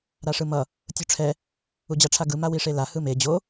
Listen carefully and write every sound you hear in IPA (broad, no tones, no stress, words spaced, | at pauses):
ɾaʂɯmʌ | tʲuʈ͡ʂʰɛ | ud͡ʑaʈ͡ʂʰaɡɯ mawiʂela hɯme d͡ʑo